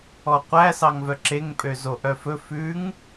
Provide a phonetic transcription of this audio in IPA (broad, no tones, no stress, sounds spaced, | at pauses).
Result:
ɔ qʷ æ s ɑ ŋ v œ ǁ e ŋ pʼ ø z o ʔ œ f ɵ f ʉ ŋ